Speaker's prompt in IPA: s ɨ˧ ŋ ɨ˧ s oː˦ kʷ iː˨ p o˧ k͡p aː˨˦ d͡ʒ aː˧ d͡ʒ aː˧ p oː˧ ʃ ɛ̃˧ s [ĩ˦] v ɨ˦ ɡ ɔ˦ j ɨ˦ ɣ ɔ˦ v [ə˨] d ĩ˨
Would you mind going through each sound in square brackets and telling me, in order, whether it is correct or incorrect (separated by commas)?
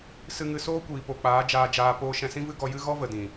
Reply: correct, correct